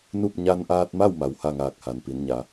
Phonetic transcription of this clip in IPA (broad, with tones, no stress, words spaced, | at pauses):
nu˥˨p̚ ɲa˧nʔaː˧t̚ma˥˨w ma˩wha˥˨ŋaː˧˩k̚ ha˩npi˩˧nɲa˩˧